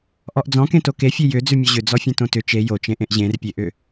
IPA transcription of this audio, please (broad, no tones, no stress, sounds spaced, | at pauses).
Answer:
ʔ ɔ ʔ d͡z ɔ̃ k ẽ t o k e fʲ e j ʏ d͡z ʉ mʲ ɔ ʑ ʏ d͡z ɔ fʲ ẽ t õ t ʏ t͡ʃ e j o t͡ʃ ẽ ʔ ẽ ʔ ʑ ẽ r pʲ e ʔ ʏ